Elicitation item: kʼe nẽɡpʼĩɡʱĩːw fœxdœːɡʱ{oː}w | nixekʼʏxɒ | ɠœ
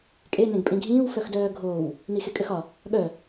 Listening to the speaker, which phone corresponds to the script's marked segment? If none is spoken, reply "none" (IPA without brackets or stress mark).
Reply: oː